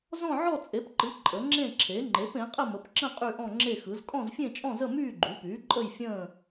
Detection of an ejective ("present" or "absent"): present